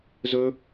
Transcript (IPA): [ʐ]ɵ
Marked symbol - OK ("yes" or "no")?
no